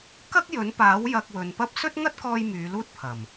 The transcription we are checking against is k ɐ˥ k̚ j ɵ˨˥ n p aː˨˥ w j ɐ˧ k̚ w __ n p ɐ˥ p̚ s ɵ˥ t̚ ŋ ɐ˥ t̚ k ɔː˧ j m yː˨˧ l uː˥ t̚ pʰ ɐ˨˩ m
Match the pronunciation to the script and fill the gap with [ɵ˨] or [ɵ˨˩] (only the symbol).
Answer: ɵ˨